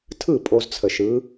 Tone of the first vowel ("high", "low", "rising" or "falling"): falling